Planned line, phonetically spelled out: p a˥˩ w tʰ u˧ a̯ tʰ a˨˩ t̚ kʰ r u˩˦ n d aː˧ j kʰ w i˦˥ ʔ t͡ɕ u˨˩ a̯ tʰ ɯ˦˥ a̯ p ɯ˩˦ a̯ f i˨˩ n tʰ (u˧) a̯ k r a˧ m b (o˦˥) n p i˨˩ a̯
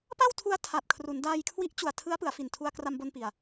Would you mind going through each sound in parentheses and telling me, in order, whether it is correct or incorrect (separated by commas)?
correct, incorrect